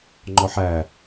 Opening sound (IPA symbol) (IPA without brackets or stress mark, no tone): ŋ͡ǃ